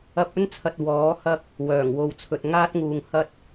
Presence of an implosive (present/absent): absent